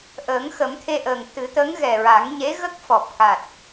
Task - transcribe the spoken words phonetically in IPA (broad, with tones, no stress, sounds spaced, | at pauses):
ʔ əː˨˩˦ ŋ x ə˨˩˦ m t̪ʰ e˧ ʔ əː˨˩ ŋ t̪ ɨ˨˩˦ t̪ ə˧˥ ŋ ɣ ɛ˨˩ ɹ a˨˩˦ ŋ ɲ e˧˥ ɣ ə˦˥ k̚ f ɔ˨˩ p̚ k a˨˩ t̚